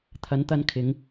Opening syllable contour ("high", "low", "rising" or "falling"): rising